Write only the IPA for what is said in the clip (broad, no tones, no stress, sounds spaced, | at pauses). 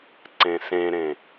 ǀ ẽ s ẽ ɾ ẽ